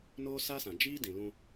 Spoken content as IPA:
n o˦ s a˦ s ã˨ d͡ʒ iː˦ d ĩ˨ l ũ˦

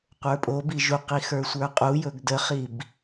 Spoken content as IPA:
qʷ ə˞ pʼ o b i ʒ u q i x ə˞ sʷ ə˞ qʼ u j ɵ ɡ d ə χ i b

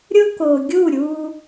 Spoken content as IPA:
ɾʲ ʊ˦ k o˨ ɡʲ u˦˨ ɾʲ uː˧

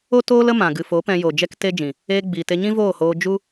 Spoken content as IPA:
o˦ t oː˦ l ə˦ m ã˨ ɡ ɨ˨ f o˨˦ p ɛ̃˧ j o˨ d͡ʒ ɛ˦ k t e˦ d͡ʒ ĩ˨ | eː˧ ɡ͡b iː˨ t e˧ ɲ ĩ˦ v oː˦˨ h oː˧ d͡ʒ u˧

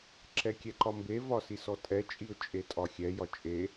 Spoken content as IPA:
ǁ ɛ kʲ ɛ ǃ ɒ m b e v ɒ s i s ɔ tʼ ɛ t͡ʃʼ i ʊ̯ t͡ʃʼ e tʼ ɒ xʲ ɛ j ɒ t͡ʃʼ e

